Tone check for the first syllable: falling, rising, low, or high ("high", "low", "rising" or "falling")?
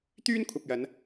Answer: high